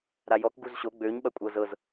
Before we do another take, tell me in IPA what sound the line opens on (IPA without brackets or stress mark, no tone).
ɾ